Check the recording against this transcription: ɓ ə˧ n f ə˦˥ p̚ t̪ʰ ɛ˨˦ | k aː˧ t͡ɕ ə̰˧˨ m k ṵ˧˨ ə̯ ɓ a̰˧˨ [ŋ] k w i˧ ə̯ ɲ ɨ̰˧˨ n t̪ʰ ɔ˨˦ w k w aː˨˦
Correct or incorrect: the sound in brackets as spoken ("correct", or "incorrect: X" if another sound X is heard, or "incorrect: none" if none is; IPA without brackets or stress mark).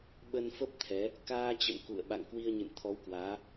correct